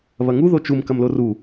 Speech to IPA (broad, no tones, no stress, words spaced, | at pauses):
βɐŋu ðot͡ʃum kɐmloru